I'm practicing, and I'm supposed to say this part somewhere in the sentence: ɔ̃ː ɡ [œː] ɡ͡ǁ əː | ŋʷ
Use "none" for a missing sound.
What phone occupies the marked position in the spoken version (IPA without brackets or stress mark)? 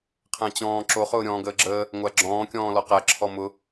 əː